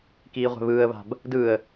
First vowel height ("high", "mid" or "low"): high